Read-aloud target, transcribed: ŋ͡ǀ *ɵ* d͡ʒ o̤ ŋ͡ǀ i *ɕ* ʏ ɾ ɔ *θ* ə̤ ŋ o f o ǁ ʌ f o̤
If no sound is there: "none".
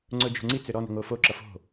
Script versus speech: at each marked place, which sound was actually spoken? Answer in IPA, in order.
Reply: ɵ, t͡s, n

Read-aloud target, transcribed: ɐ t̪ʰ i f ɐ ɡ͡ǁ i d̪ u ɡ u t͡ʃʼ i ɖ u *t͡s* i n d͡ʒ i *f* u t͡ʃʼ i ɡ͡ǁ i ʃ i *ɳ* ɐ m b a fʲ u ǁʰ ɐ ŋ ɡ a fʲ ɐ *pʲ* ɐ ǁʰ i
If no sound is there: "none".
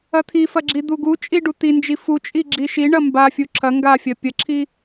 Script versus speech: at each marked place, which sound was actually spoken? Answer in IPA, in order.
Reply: t̪, f, ɳ, pʲ

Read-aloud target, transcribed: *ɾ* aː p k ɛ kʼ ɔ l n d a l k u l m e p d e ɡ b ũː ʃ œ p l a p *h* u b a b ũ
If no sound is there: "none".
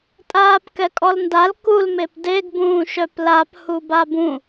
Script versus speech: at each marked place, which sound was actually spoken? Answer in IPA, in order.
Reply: tʼ, h

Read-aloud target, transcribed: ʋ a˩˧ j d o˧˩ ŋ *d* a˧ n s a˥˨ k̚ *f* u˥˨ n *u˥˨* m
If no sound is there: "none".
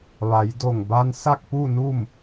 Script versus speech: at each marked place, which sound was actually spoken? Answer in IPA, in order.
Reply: b, p, u˥˨

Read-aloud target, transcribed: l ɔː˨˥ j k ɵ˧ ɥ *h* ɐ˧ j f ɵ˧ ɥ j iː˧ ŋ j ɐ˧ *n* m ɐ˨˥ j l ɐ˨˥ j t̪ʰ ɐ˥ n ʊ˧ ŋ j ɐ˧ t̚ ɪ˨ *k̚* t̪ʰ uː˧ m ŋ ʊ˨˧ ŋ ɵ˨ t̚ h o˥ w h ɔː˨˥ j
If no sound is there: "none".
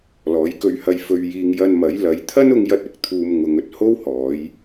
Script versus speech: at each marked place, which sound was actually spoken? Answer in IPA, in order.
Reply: h, n, k̚

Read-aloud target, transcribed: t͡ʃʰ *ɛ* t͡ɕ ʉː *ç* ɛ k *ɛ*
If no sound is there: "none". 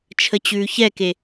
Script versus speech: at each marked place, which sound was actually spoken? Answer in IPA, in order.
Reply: ə, ç, e

